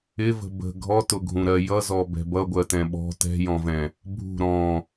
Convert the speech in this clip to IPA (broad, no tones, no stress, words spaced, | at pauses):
ɪvə̤ bə̤ ɡʱɔtʊɡʱũɾɜ jʌzɔbɛ̤ bʌɡʷɜtɛ̃ ɓɔ̤ tɛ̤jɔ̃vɛ̃ | bʱṳ ɾɔ̃